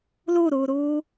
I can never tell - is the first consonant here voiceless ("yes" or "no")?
no